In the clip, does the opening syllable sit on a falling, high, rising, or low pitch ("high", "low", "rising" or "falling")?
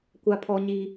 high